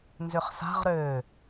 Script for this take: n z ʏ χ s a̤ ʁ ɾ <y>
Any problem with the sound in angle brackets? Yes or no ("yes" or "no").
yes